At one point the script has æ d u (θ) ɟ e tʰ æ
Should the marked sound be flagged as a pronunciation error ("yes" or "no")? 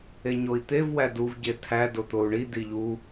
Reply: yes